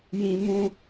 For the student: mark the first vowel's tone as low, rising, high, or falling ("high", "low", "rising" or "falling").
high